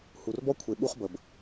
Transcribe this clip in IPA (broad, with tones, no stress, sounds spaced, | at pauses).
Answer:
h u˨ r b ɔ˦ kʷʰ e˨ ɓ u˧ χ b ə˨ b